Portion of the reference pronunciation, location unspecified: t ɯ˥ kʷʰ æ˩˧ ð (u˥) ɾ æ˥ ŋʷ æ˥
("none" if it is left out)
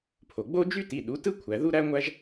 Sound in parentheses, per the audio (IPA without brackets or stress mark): u˥